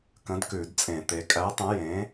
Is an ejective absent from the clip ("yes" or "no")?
no